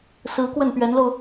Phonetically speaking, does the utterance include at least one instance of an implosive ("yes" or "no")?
no